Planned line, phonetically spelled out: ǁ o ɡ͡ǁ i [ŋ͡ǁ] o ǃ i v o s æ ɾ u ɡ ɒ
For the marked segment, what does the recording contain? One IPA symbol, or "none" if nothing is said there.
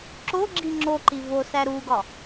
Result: ŋ͡ǁ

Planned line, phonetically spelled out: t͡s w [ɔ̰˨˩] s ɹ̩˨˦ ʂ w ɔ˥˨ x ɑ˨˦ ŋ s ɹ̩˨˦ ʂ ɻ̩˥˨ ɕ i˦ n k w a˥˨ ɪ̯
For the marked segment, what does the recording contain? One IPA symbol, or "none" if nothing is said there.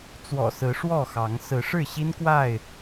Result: ɔ̰˨˩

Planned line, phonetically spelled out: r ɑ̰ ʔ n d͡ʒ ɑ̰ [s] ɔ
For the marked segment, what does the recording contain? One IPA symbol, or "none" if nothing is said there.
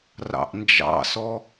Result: s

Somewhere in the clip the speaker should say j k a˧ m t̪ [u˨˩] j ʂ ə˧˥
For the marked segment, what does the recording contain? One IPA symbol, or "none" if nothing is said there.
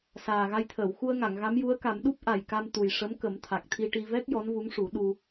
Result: u˨˩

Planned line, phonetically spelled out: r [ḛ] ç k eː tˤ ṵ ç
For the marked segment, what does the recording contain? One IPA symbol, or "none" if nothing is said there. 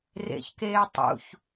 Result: ḛ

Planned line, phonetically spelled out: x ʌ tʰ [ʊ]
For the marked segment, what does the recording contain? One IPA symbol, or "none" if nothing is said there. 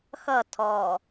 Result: ɔ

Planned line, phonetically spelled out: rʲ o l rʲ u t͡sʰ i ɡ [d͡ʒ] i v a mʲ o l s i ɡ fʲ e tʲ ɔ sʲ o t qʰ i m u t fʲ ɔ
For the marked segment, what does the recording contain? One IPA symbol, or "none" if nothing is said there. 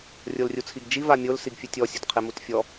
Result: d͡ʒ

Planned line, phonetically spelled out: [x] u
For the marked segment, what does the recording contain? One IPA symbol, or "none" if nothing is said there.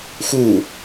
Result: x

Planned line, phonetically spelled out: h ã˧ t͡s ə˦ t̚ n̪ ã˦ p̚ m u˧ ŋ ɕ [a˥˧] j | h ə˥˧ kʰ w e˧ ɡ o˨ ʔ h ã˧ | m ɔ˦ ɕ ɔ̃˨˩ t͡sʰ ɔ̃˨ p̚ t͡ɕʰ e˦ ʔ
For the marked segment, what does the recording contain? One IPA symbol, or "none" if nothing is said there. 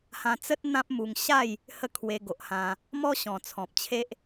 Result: a˥˧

